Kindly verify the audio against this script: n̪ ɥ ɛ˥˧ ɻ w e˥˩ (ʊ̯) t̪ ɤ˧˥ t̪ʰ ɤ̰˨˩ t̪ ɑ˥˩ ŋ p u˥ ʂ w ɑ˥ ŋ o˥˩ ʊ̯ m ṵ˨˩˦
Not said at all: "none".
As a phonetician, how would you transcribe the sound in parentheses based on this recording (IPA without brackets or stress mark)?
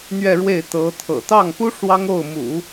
ɪ̯